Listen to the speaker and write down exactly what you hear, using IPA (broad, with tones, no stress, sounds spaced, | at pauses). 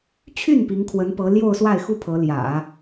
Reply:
t͡ɕʰ y˥˩ n p i˧˥ ŋ kʰ w ə˧˥ n p ɤ˧˥ l j o˥˧ ʊ̯ s w a˥˩ ɪ̯ x u˥ pʰ ɤ˧˥ l j ä̰˨˩˦